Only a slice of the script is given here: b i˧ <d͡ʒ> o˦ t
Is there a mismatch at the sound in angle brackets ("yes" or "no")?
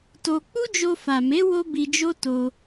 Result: no